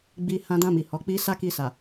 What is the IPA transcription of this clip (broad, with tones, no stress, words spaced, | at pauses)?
ɡ͡bi˧ hã˧dã˧mi˨ hɔ˨˦k͡pi˦ sa˦ki˧sa˨